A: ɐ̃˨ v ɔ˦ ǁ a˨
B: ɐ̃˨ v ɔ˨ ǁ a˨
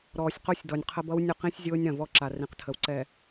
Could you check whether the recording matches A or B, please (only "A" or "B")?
A